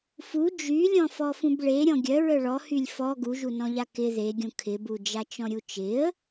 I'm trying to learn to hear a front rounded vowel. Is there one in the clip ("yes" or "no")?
yes